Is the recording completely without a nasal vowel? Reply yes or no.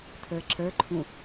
no